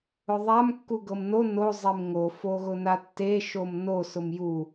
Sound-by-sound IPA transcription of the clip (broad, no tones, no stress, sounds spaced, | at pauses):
ʊ ðˤ a m kː u ɡ ɤ m n o n o zˤ e m ŋ o f o ɣ ʊ n a tː e ʃ o m n o s ʊ m j u